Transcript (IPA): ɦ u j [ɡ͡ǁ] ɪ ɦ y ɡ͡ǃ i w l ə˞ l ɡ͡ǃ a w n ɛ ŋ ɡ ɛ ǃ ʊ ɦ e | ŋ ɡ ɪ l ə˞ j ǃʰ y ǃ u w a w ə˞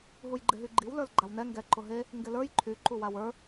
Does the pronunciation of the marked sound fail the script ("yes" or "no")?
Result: yes